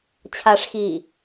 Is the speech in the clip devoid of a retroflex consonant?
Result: no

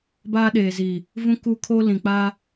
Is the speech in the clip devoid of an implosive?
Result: no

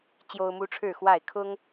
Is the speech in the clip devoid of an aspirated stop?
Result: no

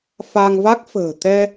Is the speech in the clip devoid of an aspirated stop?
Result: yes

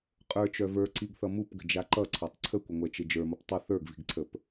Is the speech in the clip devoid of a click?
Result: no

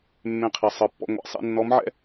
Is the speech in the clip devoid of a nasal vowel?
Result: no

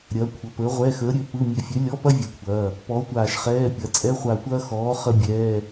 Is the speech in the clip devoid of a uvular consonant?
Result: no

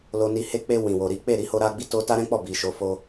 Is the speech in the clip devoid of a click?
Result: yes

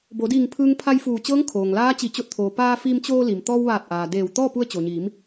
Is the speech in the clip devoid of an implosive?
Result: yes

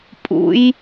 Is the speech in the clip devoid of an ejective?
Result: no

